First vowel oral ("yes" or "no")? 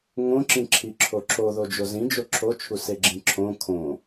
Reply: no